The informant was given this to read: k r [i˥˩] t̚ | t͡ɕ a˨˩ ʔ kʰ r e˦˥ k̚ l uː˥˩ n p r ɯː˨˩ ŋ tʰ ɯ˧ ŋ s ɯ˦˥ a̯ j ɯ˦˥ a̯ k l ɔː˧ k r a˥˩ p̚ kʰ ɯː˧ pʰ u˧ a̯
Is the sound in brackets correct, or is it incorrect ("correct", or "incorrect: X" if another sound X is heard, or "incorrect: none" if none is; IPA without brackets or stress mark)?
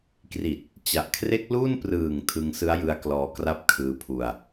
incorrect: i˨˩